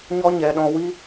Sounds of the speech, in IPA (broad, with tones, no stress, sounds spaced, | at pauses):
ɲ ɔ˦ ɲ ɛ˨ ɗ ɔ̃˧ w i˦